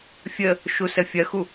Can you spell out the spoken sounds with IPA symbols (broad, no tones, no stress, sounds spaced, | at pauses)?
fʲ ə | ʃ u s ə fʲ ɐ x u